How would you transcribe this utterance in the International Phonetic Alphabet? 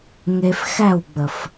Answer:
ŋe˧fxæ˦˨wɡ͡bə˨f

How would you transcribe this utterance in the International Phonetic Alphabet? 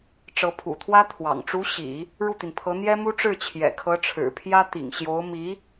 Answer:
ʈ͡ʂɤ˧˥pʰṵ˨˩t̪ʰwä˥ t̪ʰwɑ̰˨˩ŋ ʈ͡ʂu˧˥ ɕḭ˨˩˦ | ɻu˥˩t̪i˩npʰɤ˧˥ n̪jɛ˥mu˥ ʈ͡ʂɻ̩˥˩t͡ɕʰjɛ̰˨˩kʰɤ˧˥ʈ͡ʂʰɻ̩˨˩ pʰjä˥t̪ḭ˨˩ŋɕjo˧˥ʊ̯ mi˧˥

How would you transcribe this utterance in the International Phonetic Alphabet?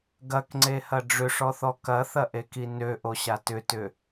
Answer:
ɡɐkŋ͡ǀehɐ ɖ͡ʐʏʂɔθɔ kɐθɐʔeki nøʔoɕa tʏtʏ

